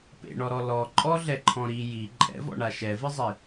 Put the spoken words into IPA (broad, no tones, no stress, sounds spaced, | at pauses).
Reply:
p ḛ ɳ ɔ ɾ ɔ l ɔ ǃʼ ɔ ɮ ɛ ǃʰ ɔ̃ ɾ i j i ǃʼ ɛ̰ v ɔ̰ ɳ a ʃ ɛ v ɨ zˤ i